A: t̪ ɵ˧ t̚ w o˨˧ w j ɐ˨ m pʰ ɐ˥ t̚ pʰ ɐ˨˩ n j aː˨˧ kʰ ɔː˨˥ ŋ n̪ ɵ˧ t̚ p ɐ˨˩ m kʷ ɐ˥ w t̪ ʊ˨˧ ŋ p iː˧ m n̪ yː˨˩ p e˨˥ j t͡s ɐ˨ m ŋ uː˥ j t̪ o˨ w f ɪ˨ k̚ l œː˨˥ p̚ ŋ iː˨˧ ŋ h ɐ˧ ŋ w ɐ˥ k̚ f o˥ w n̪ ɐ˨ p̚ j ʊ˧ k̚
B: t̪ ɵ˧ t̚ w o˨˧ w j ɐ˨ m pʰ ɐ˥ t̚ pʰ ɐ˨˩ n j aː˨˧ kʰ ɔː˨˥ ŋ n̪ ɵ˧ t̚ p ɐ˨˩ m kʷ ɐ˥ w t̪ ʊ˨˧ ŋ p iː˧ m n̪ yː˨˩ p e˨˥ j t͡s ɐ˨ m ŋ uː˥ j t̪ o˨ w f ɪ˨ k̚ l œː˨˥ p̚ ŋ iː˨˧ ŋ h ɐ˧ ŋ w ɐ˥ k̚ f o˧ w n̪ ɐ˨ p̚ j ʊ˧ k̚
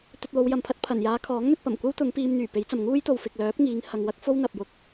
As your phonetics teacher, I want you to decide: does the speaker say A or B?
A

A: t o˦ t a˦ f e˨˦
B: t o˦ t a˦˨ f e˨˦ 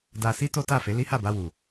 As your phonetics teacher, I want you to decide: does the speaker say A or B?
B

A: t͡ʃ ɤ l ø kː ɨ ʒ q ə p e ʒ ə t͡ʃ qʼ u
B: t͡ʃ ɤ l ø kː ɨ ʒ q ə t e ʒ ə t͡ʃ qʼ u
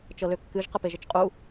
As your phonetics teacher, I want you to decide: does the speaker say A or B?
A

